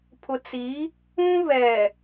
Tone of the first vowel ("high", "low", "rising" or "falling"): low